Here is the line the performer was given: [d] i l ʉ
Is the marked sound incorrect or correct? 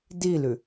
correct